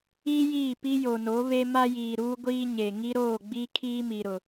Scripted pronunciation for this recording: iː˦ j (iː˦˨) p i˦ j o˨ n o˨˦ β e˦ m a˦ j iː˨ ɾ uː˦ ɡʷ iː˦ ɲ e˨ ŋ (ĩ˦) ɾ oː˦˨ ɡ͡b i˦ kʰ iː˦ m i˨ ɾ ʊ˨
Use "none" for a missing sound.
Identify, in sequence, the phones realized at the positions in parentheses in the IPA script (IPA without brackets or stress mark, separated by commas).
iː˦˨, i˦